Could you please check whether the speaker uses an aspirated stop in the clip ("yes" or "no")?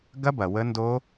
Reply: no